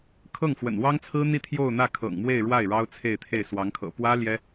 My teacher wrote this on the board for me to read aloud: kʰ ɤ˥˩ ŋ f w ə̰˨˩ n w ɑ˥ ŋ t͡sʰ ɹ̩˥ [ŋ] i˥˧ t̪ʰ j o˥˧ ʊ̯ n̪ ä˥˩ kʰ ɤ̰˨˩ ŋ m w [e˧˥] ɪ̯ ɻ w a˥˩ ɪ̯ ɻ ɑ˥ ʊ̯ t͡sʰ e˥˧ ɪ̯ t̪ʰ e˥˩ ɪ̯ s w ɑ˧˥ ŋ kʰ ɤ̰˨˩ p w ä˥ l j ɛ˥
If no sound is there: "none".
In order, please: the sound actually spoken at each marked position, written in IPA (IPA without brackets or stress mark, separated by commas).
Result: n̪, e˥˧